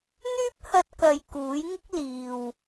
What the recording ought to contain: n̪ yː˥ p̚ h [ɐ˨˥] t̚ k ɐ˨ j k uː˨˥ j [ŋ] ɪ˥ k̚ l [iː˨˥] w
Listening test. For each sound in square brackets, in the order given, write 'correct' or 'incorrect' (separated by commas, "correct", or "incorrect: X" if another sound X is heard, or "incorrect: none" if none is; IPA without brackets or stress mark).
incorrect: ɐ˧, correct, incorrect: iː˨